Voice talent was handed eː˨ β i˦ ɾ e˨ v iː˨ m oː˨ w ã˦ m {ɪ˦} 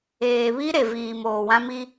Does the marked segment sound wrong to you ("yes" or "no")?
yes